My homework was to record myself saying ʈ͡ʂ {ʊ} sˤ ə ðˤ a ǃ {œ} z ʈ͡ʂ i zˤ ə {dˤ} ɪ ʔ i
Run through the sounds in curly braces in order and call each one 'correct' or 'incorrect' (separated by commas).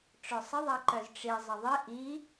correct, correct, incorrect